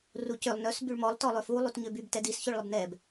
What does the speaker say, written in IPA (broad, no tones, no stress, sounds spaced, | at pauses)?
r u c ø lˠ n œ s b y ɭ m ɔ lˠ t ɔ lˠ ø f u lˠ u t ɲ ø b y b t ɛ d i s ç ø ɭ lˠ ə b n ɛ b